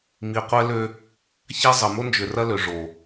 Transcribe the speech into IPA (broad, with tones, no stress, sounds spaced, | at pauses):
m i˨ qʷ ɛ˦ l ø˦ | ç a˦ zˤ ə˨ m o˦ n d͡ʒ ʏ˨ r ɐ˦ l ø˨ ʐ o˨